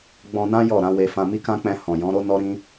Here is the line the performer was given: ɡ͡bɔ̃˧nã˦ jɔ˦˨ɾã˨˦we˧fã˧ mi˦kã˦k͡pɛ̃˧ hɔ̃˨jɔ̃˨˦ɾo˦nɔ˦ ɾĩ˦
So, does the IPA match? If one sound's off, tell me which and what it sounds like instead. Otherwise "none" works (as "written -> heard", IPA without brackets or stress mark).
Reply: none